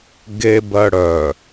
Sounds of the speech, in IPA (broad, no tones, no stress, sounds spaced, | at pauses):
ɡ e b ɜ ɽ œ